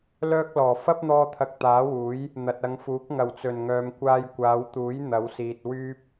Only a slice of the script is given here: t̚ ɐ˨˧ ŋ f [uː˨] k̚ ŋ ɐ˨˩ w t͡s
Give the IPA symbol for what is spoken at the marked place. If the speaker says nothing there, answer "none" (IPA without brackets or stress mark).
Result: uː˨˥